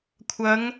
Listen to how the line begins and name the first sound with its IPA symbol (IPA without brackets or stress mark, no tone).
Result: kʷʰ